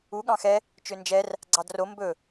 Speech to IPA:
u ɠ ɑ̃ x ɛ | t͡ʃ ø n d͡ʒ ɛ r | ɡ͡ǀ ɑ d r o m b ɵ

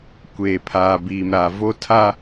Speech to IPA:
kʷ eː˨ pʰ aː˨ b iː˨ m ɾ aː˨ v o˦ tʰ a˦

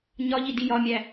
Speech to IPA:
ɲ ɒ ʎ i d i j ɒ mʲ æ

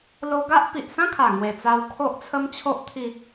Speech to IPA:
l o˧ ɡ a˦ ʔ p i˨ ʔ s ã˦ kʰ a˨˩ ŋ w e˨˩ t͡s a˧ w kʰ o˦ ʔ t͡sʰ ə˦ m t͡ɕʰ o˦ ʔ t̪ʰ i˧

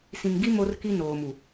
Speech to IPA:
s ĩ˨ ŋ ɡ i˦ m o˦ r k i˦ n oː˨ m u˨

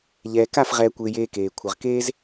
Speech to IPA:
ʎ ɛː˨ k a˦˨ f ʁ ɛː˧ kʷ ɪː˧ j eː˧ k eː˨ kʷʰ ɪ˨ ʁ k eː˦ z

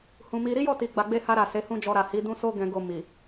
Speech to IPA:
h ũ˨ m i˧ ɾ i˦ j ɔ˦˨ t i˨ ɡ͡b a˨ ɡ͡b e˧ h a˧ ɾ a˨ s e˨˦ h ũ˦ d͡ʒ ɔ˧ ɾ a˨ h i˨˦ d ũ˦ s o˦ ɡ ɛ̃˧ ɡ o˧ m i˨

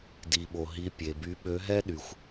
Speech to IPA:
d i˩ ɓ o˩ ɦ i˨˦ pʲ e˩ b y˨˦ ɓ ø˨˦ ɦ ɛ˥ ɗ y˩ xʷ

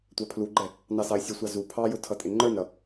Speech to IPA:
tʷ æ pʰ l u ɡ͡ǃ ɛ | n ɑ s ɑ ɪ̯ sʲ ə sʷ ɑ z u pʰ ɑ j ʊ tʰ ʌ tʼ ɪ ŋ͡ǃ ə˞ n ɾ ʌ

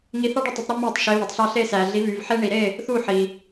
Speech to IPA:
ŋ i˧ θ ɑ˥ ɖ e˥˩ tˤ o˧ tˤ ɾ i˥ m oː˥˩ tˤ ʃ e˩˥ β e˩ tˤ ɬ ɑ˧ ɬ e˧ s æ˩ ɮ i˩˥ β y˩ v ħ e˥ ɳ i˩ ɾ e˥˩ | θ u˥˩ ħ i˩

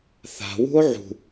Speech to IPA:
θ a̤ w ṳ o̯ ʕ ṳ

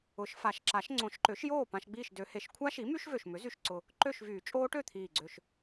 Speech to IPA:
ʊ˨˩˦ ʃ f a˨˩˦ ʃ ǁ a˨˩˦ ʃ ŋ͡ǀ õ˨˩˦ ʃ ǃ ø˩˥ ʃ j oː˥˨ p ã˧ ʃ ɡ͡b iː˥˨ ʃ d ø˨˩˦ h e˨˩˦ ʃ kʷʰ a˦˥ ʃ i˩˥ m y˦˥ ʃ v ø˨˩ ʃ m ʏ˩˥ z y˨˩ ʃ ǀ ʊ˨˩ | ǃ ø˥˨ ʃ v yː˨˩˦ t͡ʃʼ oː˦˥ ʈ ø˥˨ t̪ʰ iː˨˩ ɡ͡ǀ ø˨˩ ʃ

